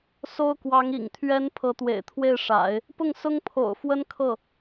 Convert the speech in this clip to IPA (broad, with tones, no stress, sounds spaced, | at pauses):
s o˥ ʊ̯ k w ɑ˧˥ ŋ ḭ˨˩ ŋ t̪ʰ ɥ ɛ˥ n pʰ ɤ˧˥ t̪ w ḛ˨˩ ɪ̯ t̪ʰ w e˥˩ ɪ̯ ʂ a̰˨˩˦ ɪ̯ | p ʊ˥˩ ŋ s ʊ˥ ŋ pʰ o̰˨˩ ʊ̯ f w ə˥ n kʰ ɤ˥˩